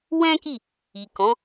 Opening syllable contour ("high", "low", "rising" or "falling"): high